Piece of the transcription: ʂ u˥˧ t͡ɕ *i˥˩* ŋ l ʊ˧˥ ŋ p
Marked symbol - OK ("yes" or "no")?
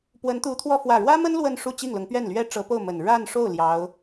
yes